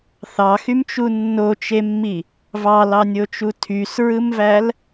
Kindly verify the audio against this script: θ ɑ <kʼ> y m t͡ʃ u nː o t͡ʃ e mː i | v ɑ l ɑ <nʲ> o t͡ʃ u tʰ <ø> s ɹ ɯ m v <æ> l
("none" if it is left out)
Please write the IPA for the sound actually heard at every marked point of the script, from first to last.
x, nʲ, y, æ

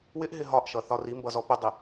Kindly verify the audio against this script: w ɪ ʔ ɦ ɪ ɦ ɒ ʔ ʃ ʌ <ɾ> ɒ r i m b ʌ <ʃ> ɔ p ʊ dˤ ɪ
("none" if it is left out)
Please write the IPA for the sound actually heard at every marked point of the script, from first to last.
θ, z

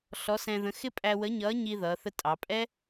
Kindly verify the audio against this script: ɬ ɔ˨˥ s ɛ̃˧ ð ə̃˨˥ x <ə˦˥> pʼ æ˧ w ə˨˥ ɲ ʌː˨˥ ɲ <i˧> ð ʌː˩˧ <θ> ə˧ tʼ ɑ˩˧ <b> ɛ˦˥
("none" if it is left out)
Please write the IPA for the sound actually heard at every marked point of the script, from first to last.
ɪ˦˥, i˧, θ, pʼ

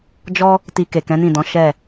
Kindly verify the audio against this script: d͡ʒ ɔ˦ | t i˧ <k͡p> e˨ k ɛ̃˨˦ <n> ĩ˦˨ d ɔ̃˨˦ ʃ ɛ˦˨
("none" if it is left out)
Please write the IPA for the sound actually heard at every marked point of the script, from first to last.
k, n

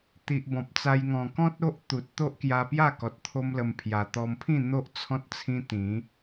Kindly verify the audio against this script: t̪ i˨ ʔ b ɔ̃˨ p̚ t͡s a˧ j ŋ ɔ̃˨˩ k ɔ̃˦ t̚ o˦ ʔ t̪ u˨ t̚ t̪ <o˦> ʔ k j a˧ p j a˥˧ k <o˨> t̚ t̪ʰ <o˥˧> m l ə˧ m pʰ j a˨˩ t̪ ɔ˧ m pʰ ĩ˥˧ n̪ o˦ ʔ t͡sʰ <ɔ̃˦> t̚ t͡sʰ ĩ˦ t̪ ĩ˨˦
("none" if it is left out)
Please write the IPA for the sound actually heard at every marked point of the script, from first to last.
o˦, ɔ˨, o˦, ɔ̃˦

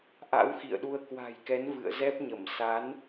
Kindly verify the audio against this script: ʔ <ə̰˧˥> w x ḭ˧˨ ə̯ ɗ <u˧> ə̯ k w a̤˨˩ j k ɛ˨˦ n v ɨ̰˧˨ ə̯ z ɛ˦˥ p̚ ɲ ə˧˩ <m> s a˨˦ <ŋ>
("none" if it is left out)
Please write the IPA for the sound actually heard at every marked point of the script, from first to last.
a̰˧˥, u˧, m, n

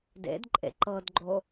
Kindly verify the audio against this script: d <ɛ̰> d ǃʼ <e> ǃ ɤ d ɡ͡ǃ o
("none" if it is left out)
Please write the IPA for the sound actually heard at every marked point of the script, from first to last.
ḛ, ḛ

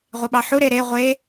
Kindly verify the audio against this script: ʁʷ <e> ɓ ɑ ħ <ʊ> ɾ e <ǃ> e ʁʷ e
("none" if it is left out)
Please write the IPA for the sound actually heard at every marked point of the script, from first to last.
e, u, ɾ

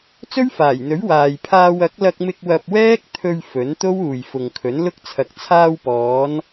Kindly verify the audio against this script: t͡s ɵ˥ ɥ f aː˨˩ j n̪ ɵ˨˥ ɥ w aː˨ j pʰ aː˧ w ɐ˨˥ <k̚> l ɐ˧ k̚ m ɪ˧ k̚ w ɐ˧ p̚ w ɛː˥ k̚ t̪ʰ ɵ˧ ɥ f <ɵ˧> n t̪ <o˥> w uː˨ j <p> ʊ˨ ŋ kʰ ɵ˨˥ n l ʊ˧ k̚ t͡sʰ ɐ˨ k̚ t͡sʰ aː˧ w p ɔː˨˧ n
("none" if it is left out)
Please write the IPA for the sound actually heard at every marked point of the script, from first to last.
k̚, ɵ˨˥, o˥, f

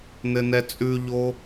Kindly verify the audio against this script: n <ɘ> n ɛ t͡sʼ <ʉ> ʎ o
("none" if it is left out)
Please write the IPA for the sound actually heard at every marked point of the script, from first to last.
ɘ, ʉ

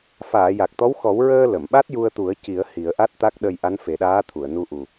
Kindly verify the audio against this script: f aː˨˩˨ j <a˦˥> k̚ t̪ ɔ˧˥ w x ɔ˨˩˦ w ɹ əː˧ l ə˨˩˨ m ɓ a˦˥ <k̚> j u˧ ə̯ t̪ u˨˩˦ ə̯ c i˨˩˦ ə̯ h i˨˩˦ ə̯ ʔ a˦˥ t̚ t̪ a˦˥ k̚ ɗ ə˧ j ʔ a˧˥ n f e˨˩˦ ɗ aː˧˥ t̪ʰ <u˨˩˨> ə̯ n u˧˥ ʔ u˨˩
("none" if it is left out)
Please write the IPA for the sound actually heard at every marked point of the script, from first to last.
a˨˩, t̚, u˨˩˨

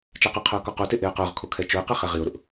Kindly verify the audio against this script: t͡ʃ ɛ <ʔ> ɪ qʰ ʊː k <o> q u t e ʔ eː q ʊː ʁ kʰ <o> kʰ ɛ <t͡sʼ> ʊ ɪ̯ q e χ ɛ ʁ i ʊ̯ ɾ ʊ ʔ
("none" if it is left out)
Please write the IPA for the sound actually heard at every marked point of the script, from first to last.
q, ɔ, o, t͡ʃ

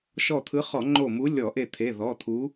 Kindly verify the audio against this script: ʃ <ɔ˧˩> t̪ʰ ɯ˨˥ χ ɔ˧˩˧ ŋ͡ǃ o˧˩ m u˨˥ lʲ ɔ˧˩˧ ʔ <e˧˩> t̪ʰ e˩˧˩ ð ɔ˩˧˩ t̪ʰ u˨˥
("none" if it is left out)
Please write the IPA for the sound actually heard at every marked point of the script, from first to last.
ɔ˧˩, e˧˩

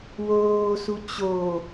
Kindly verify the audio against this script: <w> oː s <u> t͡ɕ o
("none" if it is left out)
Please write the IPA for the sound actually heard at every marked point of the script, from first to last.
w, u

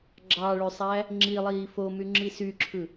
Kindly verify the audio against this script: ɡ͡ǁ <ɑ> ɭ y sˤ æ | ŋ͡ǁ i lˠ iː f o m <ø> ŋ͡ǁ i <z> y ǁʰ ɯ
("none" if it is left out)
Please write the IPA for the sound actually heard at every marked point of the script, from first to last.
ɑ, y, s

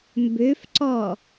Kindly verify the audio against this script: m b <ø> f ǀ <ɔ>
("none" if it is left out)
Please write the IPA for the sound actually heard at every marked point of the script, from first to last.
ø, ɔ

